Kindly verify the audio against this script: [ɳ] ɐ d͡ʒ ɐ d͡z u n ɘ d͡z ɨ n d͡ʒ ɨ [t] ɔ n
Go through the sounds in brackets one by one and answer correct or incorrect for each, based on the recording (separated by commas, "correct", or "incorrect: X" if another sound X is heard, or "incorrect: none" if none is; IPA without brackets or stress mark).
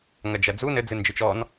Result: incorrect: ŋ, incorrect: t͡ʃ